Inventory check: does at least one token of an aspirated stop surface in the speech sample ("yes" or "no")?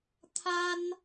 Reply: yes